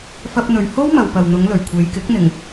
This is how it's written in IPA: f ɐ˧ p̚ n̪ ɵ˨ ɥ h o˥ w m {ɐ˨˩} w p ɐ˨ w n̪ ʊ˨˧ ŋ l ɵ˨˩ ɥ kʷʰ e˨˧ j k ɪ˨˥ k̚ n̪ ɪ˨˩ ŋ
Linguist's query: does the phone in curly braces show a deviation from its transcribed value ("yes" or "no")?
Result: yes